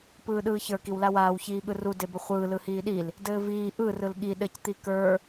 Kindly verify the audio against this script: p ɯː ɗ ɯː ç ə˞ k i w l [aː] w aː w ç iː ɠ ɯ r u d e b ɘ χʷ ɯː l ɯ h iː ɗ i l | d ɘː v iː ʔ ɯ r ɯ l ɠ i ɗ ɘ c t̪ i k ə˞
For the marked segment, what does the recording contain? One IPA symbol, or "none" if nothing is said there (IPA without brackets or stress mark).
a